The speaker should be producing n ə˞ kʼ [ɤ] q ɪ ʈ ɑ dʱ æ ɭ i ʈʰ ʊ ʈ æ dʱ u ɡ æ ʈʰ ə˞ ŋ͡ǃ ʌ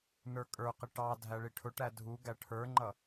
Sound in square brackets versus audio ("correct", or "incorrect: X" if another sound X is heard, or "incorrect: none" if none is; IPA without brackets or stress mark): incorrect: ə˞